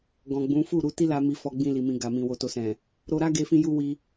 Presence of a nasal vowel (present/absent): present